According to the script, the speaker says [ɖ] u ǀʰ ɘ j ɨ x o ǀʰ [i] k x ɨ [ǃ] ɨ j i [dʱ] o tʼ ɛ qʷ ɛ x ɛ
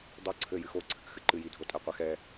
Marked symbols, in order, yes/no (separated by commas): no, no, yes, yes